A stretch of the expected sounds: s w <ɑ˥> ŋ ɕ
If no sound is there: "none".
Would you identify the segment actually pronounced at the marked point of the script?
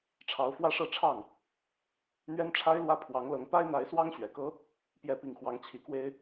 ɑ˥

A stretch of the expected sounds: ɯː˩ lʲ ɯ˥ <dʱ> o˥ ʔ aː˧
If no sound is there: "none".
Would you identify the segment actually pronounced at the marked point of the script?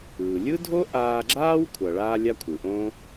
dʱ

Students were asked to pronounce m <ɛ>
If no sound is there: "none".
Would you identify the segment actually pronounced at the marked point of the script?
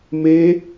e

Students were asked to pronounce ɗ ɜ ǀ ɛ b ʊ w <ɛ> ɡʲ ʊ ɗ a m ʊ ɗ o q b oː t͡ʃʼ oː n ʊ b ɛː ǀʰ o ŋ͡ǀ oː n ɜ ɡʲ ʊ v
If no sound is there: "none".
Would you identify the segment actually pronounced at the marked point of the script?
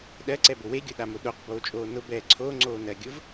e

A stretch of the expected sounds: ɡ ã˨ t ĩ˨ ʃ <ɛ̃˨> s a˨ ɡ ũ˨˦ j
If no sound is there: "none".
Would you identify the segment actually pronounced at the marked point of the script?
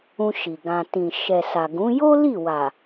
ɛ˨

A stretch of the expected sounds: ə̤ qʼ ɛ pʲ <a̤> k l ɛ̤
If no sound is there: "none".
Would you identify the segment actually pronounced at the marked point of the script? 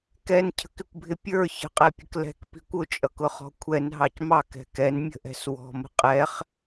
ə̤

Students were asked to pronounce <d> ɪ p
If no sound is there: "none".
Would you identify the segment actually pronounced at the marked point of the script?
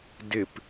d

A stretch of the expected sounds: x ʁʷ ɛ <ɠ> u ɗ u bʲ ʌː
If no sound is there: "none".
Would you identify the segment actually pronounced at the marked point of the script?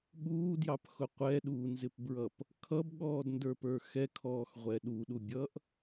ɗ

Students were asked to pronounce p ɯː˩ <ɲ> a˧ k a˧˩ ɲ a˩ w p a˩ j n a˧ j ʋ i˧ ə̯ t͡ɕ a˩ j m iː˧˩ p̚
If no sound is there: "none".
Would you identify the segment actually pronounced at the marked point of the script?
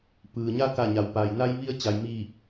ɲ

